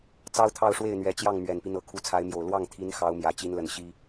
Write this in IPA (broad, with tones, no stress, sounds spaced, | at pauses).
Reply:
t͡s ɑ˥ ʊ̯ t̪ʰ ɑ˥˧ ʊ̯ ʂ w e˥˩ ɪ̯ n̪ ɥ ɛ˧˥ t͡ɕ j ɑ˥˩ ŋ m ɥ ɛ˨˩ n p i˦ n̪ ɤ˨˩ kʰ u˧˥ t͡sʰ a˧˥ ɪ̯ m j o˨˩ ʊ̯ l w ɑ˥˩ ŋ t̪ʰ i˧˥ n x ɑ˧˥ ʊ̯ m j ä˨˩ t͡ɕ i˧˥ n l ə˨˩ n ɕ i˥